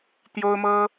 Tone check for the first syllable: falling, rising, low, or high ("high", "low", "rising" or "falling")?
high